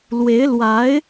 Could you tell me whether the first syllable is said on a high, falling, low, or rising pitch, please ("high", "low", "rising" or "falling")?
rising